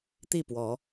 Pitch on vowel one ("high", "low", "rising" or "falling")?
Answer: falling